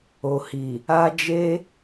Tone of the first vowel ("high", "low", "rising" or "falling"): low